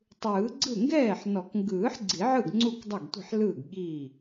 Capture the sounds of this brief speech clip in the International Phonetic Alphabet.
tˤ ɯː˨˩˦ ɡ͡ǀ ɯ˥˩ ŋ ɡ ɛː˥˩ ħ n ɔ˨˩˦ k ŋ ɡ ɯː˨˩˦ ħ ɡ͡ǀ i˨˩˦ ʕ ɯ˥˩ ɡ ŋ͡ǀ u˥˩ k dˤ ɛ˥˩ ɡ tʷ i̤˥˩ ħ l ɯː˥˩ ɡ ɠ i˥˩

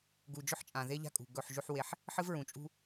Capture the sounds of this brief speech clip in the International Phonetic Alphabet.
ɡ u˨ d͡ʒ ɵ˦ ħ t͡ʃʼ ã˨ ð e˦ ʎ a̤˦ kʼ ṳ˨ ɡ ɵ˦˨ ħ ʒ ʉ˦ ħ w e˦ ħ | ħ ɨ˦ v ɹ ũ˨ t͡ʃʼ ṳ˦

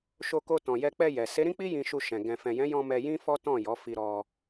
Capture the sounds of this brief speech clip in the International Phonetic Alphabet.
ʃ o˧ k o˧ t ɔ̃˨ j ɛ˧ k͡p ɛ˧ j ɛ˨ s e˨˦ ɾ ĩ˦ k͡p i˦ j ĩ˧ ʃ u˧ ʃ ɛ̃˨ ɡ ɛ̃˨ f ɛ̃˨ j ɛ̃˨˦ j ɔ̃˧ m ɛ˧ j ĩ˦ f ɔ˦ t ɔ̃˦˨ j ɔ˨˦ f i˧ ɾ ɔ˧

